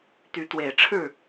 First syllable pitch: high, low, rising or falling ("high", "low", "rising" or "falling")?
rising